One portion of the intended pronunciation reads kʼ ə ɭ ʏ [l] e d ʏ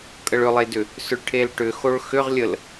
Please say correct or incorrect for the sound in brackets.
incorrect: lˠ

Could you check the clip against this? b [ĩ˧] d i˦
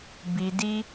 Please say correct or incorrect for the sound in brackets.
incorrect: i˧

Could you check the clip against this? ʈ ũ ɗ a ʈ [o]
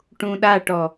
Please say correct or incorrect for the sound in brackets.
incorrect: ɔ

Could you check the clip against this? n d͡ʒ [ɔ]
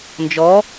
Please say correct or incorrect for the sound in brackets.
correct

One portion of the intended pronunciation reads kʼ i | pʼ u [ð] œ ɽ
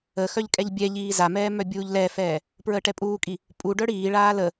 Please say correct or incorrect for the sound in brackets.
incorrect: ɖ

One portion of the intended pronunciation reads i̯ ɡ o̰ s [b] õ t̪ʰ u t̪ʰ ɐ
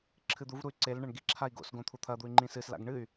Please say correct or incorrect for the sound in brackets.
incorrect: ɡ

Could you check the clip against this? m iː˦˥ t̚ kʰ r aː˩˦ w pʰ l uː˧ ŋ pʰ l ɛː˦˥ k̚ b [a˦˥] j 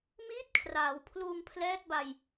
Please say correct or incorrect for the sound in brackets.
incorrect: a˧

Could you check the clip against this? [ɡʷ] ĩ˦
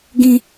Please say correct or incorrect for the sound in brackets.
incorrect: ɡ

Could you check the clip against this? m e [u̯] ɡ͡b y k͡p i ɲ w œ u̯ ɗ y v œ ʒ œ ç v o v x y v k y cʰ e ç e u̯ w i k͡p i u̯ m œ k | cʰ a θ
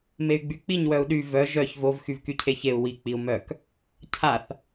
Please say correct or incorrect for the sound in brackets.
incorrect: y̯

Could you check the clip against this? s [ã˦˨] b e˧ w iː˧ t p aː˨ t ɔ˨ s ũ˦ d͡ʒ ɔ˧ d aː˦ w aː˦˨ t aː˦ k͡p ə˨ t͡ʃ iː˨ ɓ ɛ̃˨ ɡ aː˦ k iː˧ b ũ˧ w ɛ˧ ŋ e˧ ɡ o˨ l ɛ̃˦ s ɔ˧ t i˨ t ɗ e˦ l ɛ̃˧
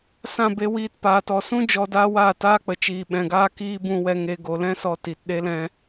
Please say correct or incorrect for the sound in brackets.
correct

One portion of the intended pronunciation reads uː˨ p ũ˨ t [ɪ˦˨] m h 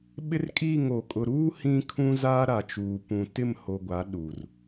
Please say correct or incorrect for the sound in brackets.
correct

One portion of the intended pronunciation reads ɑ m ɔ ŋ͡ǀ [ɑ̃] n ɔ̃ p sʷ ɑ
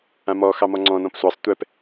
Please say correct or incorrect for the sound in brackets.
incorrect: ɔ̃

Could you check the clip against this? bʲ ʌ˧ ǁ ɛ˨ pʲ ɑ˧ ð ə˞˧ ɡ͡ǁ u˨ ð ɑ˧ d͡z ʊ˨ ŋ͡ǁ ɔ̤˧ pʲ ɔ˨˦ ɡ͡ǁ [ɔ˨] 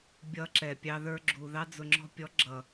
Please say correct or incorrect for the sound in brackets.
incorrect: ʌ˨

